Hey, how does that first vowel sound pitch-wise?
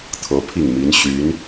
rising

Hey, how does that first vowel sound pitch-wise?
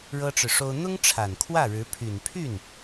high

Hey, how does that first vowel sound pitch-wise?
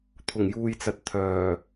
low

